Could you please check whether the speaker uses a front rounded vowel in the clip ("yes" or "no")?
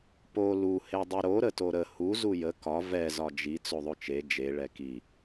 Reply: no